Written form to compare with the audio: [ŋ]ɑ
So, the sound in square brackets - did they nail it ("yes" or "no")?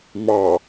no